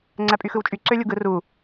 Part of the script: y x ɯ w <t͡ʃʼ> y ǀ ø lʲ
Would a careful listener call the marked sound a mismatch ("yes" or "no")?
no